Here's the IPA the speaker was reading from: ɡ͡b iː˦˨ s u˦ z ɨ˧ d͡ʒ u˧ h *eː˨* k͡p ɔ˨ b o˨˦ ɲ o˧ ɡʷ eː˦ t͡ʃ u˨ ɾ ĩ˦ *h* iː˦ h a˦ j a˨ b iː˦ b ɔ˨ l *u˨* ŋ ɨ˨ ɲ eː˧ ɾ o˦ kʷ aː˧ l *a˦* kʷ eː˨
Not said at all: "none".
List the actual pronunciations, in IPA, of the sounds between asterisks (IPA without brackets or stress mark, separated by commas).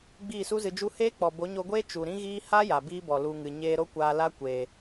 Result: eː˦, ɣ, u˧, a˦